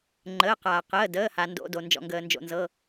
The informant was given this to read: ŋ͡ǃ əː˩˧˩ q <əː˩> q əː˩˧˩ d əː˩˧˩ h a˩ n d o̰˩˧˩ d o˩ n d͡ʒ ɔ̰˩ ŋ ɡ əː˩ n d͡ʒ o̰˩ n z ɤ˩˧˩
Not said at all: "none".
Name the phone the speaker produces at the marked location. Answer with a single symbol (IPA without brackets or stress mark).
aː˩